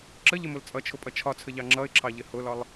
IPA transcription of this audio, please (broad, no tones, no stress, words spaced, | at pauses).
ǁəʎɪmʊl t͡sʼʌt͡ʃʰʊpʼʌ t͡ʃʰɒt͡sʰəʎɑ ŋ͡ǁʌɪ̯ǁʰɑʎɪ hʊlɒlˠ